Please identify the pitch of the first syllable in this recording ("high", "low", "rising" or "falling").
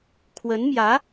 rising